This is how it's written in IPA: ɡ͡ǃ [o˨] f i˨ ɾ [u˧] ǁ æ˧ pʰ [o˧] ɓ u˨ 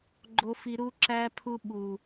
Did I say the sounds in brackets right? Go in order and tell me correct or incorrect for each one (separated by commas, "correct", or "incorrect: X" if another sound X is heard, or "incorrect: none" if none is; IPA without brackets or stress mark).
correct, correct, incorrect: u˧